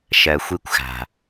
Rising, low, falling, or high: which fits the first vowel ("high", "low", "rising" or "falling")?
low